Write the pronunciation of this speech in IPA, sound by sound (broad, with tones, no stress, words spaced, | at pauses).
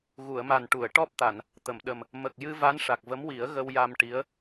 ɣu˨˩˨ə̯ma˨˩n ʈu˨˩˨ə̯ ʈɔ˦˥p̚t̪a˨˩˨n | t̪ə˨˩˨mɗə˨˩m | mə˨˩k̚jɨ˧ va˧˥nʂa˨˩k̚və˧˥mwi˨˩˦ə̯ ɣə˧wja˧mʈi˧˥ə̯